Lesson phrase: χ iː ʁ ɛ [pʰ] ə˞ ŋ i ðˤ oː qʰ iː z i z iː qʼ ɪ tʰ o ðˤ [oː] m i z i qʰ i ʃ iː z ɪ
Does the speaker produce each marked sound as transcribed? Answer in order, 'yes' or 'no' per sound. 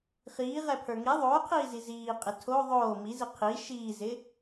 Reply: yes, yes

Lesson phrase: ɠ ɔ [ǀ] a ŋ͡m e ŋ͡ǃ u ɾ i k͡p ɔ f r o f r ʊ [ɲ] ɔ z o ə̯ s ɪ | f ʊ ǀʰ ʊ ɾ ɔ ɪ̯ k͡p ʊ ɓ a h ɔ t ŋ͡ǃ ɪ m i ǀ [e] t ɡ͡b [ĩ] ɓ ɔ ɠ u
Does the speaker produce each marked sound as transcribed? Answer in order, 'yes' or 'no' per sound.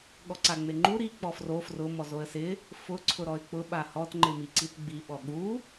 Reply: yes, no, no, no

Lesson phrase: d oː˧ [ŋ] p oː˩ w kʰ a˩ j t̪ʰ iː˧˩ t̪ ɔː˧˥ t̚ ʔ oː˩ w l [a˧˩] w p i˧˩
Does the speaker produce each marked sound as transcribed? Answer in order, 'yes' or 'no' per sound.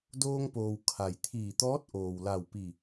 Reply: yes, yes

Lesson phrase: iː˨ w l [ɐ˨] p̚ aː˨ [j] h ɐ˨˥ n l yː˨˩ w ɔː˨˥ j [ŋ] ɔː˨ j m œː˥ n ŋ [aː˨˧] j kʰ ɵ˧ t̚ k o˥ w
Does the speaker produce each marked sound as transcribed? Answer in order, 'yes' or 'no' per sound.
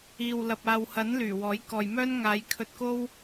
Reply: yes, no, no, yes

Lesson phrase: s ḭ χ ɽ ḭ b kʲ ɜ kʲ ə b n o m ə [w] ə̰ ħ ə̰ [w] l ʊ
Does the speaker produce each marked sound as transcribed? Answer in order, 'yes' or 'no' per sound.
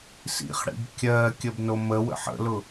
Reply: yes, no

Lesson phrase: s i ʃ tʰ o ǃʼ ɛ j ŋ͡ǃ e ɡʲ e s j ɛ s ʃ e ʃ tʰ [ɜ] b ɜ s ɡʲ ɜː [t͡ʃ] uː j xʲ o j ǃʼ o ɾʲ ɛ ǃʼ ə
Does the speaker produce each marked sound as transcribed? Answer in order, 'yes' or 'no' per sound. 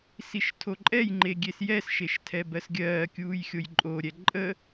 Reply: no, no

